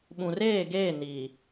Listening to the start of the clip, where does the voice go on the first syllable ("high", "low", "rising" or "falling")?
low